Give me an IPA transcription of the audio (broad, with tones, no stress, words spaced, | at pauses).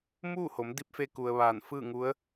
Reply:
muː˥˨ho˩˧m di˧˥p̚fe˧ ku˩ə̯ ʋaː˧˩nfɯː˥˨ŋu˧˥ə̯